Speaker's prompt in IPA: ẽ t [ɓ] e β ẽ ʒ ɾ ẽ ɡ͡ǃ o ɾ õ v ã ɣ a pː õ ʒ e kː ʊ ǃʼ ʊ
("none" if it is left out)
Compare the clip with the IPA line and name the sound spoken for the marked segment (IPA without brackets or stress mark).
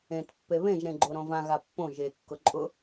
pː